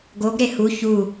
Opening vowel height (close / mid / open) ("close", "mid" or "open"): mid